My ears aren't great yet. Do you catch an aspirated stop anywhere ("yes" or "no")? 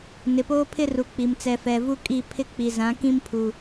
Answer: yes